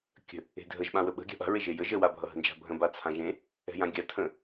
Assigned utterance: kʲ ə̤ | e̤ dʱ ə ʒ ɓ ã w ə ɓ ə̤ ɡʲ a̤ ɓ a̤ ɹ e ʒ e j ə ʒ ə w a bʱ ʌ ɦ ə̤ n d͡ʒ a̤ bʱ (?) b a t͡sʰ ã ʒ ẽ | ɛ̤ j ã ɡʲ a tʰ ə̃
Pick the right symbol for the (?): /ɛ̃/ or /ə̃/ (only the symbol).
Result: ə̃